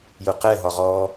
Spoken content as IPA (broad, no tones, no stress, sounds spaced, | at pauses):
j ʊ q ɛ ɦ ɒ ʁ ɔ